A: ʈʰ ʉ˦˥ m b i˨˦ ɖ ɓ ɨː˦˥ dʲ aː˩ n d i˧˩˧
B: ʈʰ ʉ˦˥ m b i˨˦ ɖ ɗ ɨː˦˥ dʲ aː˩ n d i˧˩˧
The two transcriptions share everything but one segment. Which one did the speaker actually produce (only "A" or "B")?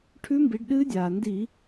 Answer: B